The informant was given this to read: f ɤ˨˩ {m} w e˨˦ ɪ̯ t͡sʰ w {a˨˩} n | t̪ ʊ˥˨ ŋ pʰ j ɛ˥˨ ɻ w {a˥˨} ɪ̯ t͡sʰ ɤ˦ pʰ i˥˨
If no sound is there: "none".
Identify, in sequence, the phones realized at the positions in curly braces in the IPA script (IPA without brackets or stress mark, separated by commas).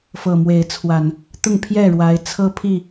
m, a˨˩, a˨˦